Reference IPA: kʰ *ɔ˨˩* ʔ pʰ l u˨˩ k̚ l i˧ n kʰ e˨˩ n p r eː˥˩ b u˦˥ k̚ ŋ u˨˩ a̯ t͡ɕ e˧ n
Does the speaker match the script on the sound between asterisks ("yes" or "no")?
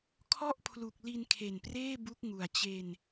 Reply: no